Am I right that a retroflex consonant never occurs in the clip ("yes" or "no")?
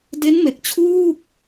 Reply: yes